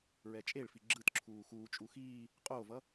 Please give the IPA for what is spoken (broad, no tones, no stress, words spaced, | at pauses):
ɹɛt͡ʃʼeɭfi ɡ͡ǁɯtǁʰuː xuːt͡ʃʼu xiː | qʼoːvʌ